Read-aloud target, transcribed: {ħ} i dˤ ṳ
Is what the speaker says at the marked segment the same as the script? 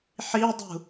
yes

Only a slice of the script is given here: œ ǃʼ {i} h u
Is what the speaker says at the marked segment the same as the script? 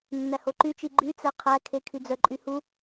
no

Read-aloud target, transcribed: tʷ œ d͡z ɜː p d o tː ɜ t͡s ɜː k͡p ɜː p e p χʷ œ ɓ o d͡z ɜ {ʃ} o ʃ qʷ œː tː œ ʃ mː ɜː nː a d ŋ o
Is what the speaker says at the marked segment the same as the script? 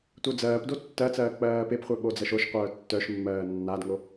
yes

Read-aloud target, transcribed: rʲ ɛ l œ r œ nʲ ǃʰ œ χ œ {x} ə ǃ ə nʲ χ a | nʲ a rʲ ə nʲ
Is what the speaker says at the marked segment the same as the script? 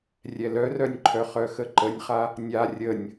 yes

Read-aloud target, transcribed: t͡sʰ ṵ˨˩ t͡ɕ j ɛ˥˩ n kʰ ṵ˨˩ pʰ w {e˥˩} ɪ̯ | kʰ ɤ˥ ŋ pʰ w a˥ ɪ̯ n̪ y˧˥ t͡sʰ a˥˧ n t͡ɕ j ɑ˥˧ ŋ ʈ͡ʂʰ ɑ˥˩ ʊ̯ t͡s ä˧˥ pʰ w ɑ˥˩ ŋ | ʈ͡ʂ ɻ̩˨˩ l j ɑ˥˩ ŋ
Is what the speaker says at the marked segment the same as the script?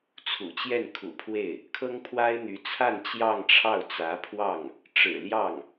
yes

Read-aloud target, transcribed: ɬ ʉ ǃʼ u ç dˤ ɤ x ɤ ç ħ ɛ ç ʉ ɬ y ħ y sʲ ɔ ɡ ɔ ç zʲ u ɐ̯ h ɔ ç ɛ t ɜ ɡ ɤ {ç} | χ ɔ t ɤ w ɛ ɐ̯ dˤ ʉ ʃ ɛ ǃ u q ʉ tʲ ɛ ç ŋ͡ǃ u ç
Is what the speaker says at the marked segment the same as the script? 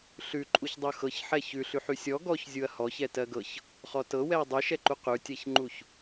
yes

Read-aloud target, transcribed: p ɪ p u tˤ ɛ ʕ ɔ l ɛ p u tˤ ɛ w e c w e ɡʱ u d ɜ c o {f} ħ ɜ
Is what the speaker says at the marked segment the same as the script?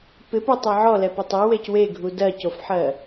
yes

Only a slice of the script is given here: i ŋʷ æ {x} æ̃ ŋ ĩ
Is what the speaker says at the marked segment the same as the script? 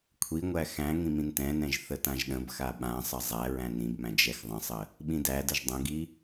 yes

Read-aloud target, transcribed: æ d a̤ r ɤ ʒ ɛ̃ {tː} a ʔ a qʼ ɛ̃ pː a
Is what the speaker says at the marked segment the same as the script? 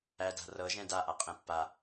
no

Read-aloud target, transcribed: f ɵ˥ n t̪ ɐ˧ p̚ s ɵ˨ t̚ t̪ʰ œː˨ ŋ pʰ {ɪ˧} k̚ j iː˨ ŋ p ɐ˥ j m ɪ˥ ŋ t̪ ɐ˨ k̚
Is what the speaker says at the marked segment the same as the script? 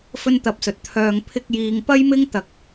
yes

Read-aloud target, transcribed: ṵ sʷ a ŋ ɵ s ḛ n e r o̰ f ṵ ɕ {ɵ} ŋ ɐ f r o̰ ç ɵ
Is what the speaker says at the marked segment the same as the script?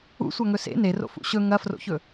yes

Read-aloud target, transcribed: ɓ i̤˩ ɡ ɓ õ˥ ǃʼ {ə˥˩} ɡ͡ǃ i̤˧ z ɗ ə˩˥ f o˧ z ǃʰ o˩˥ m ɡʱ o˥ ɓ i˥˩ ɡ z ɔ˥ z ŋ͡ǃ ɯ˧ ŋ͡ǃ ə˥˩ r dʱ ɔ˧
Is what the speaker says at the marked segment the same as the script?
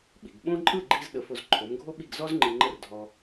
no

